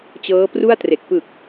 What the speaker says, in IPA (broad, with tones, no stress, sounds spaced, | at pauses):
t͡ɕ ɤː˦˥ p r u˥˩ a̯ t r e˨˩ k̚ p ɯ˨˩ k̚